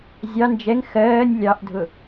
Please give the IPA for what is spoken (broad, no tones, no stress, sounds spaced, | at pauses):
zʲ ɑ n d͡ʒ ɛ ŋ x ɜː nʲ lʲ ɑ ʔ dʱ ʊ